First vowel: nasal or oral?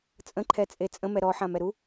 nasal